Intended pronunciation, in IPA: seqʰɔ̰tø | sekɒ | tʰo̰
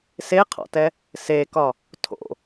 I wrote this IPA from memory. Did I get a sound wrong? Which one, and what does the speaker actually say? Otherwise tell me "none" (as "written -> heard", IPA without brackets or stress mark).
ø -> ɛ